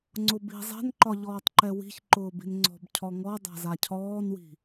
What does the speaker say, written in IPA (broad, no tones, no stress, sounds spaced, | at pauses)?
ŋ͡ǀ ʊ b i̤ zˤ ɛ̤ n ǃ ɒ ʎ ɔː tˤ ǃ ɛ w i̤ ç ǃ ʊː b i̤ n ŋ͡ǀ ɔ̤ b cʰ ɔ ŋ ɔ dˤ a̤ z a cʰ ɔː n w i̤